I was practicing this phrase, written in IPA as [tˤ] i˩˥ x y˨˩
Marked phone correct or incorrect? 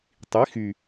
correct